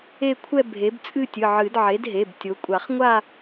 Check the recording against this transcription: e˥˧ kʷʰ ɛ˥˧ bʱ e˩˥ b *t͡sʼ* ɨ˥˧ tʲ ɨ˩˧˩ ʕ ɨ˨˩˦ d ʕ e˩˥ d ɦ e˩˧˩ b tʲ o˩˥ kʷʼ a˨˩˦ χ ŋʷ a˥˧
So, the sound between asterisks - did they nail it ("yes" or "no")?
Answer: yes